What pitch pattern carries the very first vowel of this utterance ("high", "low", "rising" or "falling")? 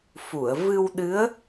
low